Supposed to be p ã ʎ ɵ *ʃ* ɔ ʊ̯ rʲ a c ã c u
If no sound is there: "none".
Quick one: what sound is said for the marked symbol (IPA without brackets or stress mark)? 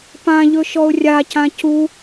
ʃ